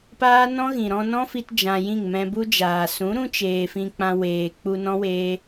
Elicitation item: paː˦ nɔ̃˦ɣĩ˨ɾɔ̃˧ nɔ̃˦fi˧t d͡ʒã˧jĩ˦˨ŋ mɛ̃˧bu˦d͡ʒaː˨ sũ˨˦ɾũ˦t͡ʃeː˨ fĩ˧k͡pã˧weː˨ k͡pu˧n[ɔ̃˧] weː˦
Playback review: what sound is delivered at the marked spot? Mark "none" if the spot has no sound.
ɔ̃˦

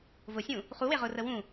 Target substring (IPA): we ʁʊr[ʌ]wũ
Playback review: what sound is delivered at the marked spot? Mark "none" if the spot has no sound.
ə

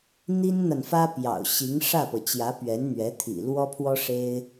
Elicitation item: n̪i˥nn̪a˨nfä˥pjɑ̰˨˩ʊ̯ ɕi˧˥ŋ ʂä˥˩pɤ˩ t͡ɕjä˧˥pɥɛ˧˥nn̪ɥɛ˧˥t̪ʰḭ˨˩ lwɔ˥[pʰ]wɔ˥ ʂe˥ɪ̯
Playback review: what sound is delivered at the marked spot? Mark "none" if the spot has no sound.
pʰ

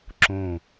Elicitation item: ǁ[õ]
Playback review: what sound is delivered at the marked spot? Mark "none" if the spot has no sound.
õ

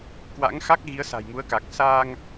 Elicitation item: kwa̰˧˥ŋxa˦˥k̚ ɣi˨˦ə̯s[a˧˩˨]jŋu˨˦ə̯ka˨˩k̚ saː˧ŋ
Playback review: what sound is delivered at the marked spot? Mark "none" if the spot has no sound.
a̤˨˩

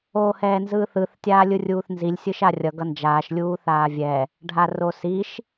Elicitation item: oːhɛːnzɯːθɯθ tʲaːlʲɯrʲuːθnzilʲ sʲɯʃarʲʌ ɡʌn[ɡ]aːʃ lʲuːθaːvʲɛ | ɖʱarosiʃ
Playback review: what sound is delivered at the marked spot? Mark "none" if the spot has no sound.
d͡ʒ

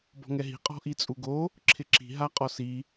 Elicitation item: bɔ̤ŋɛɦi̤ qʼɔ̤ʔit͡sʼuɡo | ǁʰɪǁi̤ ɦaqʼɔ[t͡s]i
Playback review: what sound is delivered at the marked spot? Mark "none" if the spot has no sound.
s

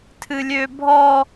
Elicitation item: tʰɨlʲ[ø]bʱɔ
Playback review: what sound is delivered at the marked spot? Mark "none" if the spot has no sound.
ø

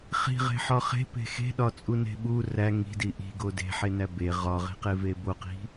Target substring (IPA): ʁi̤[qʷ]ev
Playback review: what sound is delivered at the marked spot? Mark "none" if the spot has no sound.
q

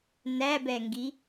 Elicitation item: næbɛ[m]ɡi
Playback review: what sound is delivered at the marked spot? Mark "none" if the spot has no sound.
ŋ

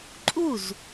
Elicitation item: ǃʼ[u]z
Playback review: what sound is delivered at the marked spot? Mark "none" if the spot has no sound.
u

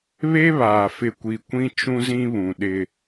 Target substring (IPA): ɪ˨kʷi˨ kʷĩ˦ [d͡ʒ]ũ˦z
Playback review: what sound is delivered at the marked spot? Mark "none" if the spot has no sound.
t͡ʃ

